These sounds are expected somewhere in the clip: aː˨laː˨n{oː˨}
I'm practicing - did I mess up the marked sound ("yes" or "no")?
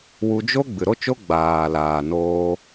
yes